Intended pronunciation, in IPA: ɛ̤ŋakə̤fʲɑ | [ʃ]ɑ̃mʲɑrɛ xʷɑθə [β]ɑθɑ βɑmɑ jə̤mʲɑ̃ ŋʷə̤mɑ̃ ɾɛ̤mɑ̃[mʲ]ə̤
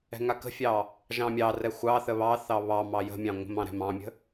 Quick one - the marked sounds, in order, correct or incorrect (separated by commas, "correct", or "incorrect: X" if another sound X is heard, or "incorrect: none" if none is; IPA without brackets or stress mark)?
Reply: incorrect: ʒ, correct, correct